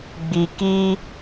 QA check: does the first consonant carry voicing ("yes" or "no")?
yes